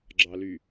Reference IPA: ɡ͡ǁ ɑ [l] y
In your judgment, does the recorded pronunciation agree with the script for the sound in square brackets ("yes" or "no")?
yes